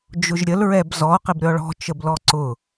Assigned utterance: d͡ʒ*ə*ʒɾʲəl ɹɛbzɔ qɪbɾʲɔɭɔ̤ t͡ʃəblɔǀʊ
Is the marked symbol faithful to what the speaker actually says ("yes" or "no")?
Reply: no